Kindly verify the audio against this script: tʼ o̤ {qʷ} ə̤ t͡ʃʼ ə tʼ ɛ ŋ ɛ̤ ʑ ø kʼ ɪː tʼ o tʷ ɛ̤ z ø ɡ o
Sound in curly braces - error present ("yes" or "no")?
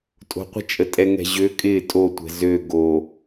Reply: no